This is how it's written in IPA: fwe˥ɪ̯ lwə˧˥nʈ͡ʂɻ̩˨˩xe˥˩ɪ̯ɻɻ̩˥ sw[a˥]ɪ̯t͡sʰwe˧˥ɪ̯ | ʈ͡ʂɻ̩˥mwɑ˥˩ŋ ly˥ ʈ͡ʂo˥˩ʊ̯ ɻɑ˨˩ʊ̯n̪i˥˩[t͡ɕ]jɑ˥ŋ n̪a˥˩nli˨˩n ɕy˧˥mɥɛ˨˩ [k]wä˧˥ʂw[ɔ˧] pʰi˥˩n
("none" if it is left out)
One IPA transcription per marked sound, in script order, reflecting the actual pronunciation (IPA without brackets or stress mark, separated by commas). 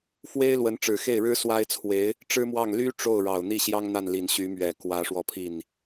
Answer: a˥, ɕ, k, ɔ˧